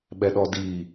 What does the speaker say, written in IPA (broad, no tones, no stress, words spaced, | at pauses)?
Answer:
ɓɛɗɔdi